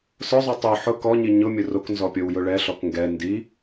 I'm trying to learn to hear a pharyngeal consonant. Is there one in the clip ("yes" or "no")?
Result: yes